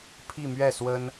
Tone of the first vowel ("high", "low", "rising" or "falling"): falling